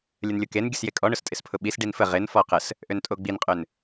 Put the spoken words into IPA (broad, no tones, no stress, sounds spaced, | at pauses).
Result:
lʲ ə n lʲ ʊ k e n ɡʲ ə s j e kʼ ɔ ɳ ʊ s tʼ ɪ s pʰ ʊ ɓ i s ɖ i n f ə ʁ ɪ n f ɔ q ə s | ʔ ø n tʼ o ɡ͡b i n qʼ ø n